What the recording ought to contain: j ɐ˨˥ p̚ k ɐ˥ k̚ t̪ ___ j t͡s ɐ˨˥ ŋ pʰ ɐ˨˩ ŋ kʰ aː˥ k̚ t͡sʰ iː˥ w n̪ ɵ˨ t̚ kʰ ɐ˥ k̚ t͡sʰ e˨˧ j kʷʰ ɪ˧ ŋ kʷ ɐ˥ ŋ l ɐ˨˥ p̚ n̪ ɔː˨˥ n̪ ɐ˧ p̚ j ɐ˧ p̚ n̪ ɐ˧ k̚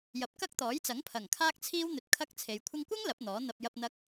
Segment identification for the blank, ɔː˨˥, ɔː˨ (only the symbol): ɔː˨˥